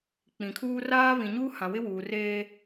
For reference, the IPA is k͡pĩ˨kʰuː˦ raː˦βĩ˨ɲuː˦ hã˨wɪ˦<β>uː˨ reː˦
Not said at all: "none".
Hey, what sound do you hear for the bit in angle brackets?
w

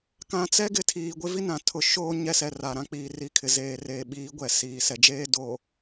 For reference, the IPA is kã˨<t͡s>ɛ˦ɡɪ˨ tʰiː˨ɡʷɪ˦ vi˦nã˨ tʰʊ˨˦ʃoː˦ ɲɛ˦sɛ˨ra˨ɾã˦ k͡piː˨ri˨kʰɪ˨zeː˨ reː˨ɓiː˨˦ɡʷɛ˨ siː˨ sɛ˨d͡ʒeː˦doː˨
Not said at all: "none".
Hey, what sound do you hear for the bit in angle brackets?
t͡s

